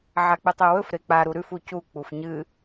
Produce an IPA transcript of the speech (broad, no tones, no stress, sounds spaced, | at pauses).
ʕ a k͡p ɨ tˤ u w ɵ f ɾ e k͡p a ɾ u ɾ ʉ f u c u k͡p u f ɲ ɨ